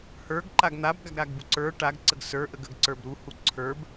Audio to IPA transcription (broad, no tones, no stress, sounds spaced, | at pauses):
h ə˞ ɡ ǃ a ɡ n̪ a b ɡ a ɡ ɾ a ɡ b u ǀ ə˞ ʈ a ɡ ǀ ə ɡ s ə˞ ʔ ə ɡ ə ɡ ǀ ə˞ b ɾ u h u ǀʰ ə˞ b